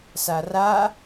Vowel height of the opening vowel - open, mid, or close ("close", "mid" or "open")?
open